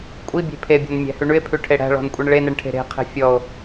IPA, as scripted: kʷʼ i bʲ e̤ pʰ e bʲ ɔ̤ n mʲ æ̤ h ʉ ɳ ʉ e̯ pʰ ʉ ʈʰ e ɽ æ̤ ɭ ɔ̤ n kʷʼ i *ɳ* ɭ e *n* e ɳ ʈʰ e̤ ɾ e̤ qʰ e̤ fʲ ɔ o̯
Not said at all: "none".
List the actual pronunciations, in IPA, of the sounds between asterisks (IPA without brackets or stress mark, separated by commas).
ɳ, n